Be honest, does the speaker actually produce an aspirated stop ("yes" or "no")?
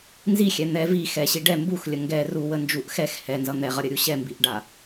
no